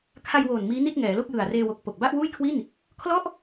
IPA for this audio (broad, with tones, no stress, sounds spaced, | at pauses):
kʰ a˧ j w oː˨˩ n m iː˦˥ n i˥˩ t̚ ŋ ɛː˩˦ l o˥˩ k̚ j ɯ˨˩ a̯ r eː˧ w o˨˩ k̚ p o˨˩ k̚ b a˥˩ ʔ w uː˥˩ j kʰ w i˥˩ n | kʰ l ɔ˥˩ ʔ